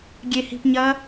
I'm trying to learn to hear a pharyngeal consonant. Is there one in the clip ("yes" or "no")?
no